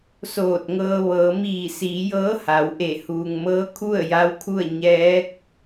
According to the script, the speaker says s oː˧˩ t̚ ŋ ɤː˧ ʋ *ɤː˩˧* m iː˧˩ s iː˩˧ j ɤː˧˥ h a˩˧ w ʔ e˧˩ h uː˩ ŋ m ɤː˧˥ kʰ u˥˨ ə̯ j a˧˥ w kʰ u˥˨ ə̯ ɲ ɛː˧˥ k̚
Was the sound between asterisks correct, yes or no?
yes